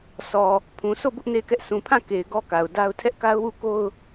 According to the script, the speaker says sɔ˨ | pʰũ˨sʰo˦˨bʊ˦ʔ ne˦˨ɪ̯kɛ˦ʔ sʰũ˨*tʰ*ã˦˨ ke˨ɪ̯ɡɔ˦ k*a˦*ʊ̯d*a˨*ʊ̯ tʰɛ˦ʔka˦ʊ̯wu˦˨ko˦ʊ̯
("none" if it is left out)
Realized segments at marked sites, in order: pʰ, a˨, a˦

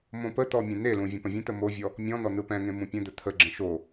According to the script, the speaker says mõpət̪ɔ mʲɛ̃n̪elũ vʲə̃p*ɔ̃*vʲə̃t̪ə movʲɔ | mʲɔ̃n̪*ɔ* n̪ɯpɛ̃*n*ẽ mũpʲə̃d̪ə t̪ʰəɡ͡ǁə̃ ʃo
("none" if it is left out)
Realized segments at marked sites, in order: ə̃, ɔ, ŋ

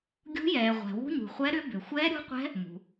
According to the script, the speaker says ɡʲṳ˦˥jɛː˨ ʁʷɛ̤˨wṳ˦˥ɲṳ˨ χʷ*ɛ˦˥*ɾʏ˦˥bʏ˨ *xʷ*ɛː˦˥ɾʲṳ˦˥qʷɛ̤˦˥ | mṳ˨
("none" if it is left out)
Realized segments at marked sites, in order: ɛ˦˥, xʷ

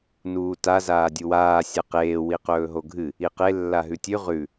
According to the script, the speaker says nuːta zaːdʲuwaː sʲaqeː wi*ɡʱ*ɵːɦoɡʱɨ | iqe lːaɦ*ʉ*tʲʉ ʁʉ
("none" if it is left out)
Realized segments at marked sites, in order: q, ʉ

